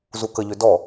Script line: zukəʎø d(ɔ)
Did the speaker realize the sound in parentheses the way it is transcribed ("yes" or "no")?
yes